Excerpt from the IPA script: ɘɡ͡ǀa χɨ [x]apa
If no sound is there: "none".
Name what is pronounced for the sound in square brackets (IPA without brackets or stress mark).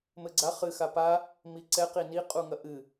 x